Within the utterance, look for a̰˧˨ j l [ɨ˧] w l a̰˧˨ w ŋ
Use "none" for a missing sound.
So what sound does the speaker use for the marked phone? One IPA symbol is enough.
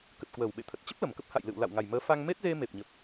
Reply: ɨ̰˧˨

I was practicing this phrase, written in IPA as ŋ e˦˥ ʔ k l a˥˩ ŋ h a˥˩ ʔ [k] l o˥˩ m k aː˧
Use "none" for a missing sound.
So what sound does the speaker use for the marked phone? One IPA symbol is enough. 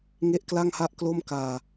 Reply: k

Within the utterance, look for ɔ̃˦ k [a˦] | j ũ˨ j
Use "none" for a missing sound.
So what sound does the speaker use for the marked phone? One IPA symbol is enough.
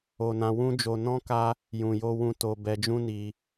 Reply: a˦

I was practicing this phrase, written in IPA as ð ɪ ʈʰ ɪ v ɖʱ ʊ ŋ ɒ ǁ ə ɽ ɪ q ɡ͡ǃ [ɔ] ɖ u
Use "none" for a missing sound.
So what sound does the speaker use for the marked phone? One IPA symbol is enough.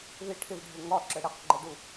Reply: ə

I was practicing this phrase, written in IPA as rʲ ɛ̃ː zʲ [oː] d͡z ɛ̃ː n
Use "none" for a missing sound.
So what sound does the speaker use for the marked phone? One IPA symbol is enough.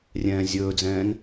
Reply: ɵː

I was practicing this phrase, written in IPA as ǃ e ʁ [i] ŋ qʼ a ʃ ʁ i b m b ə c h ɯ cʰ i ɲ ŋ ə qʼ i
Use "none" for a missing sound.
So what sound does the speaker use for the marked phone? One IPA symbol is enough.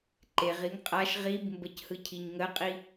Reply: i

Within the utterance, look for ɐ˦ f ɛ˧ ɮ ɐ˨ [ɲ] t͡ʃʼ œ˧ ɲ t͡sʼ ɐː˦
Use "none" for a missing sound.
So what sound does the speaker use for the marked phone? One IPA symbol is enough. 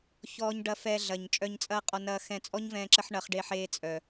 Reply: ɲ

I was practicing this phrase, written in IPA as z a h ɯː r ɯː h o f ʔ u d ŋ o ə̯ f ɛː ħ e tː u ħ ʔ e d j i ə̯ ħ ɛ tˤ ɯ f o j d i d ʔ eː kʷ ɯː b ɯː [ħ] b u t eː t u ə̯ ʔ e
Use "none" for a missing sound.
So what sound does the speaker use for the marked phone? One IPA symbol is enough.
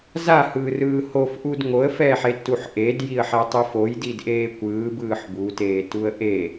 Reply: ħ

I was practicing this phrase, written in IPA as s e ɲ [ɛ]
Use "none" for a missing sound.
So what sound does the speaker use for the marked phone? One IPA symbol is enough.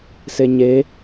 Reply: e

